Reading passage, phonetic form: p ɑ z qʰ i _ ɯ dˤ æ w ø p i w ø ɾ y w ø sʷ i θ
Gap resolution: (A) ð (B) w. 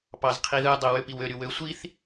A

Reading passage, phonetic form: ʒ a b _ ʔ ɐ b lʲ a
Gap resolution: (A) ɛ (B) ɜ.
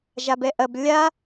A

